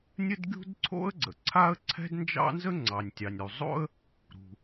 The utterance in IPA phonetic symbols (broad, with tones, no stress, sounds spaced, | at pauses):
nʲ ə˥ d ɡʲ ṳ˥ d ǀʰ o̰˥ ə̯ ɡ͡ǀ ə̰˩ ǀʰ a˥ ə̯ ǀʰ ɛ̤˥ d n d͡ʒ ɑ̰˥ n z ə˥ ŋ͡ǀ ɑ˩ nʲ tʲ ɑ˩ nʲ ɾ u˩ zˤ o̰˥ ə̯ | ɾ ṳ˩